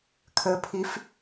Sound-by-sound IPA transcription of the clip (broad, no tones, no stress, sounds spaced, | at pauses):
kʰ ə pʰ i f